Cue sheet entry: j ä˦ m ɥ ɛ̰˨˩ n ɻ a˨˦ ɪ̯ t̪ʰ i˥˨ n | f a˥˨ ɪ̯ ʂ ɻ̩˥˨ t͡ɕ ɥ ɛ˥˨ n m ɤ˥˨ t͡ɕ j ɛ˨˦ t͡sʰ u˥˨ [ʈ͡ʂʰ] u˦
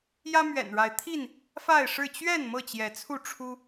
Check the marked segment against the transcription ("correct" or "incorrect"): correct